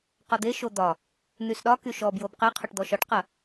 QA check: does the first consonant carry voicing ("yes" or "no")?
no